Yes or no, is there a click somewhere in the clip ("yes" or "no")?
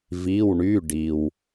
no